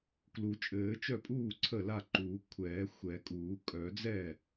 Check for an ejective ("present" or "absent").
present